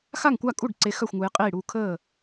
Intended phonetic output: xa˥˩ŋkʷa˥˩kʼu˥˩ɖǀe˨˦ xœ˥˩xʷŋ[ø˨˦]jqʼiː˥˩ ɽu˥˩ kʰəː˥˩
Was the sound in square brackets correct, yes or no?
no